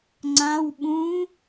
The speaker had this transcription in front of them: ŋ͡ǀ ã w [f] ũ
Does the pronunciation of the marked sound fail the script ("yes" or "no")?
yes